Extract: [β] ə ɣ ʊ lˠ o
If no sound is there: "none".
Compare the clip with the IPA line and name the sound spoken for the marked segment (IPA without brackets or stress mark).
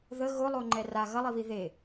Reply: ð